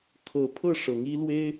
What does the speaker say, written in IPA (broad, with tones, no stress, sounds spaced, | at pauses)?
kʰ ɤ˨˦ pʰ ɤ˥˨ ʂ ɤ˨˦ ŋ i˦ l w e˦ ɪ̯